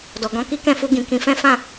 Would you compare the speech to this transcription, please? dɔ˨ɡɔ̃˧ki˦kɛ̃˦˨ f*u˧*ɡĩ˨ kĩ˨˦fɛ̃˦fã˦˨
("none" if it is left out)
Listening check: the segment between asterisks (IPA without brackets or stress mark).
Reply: u˧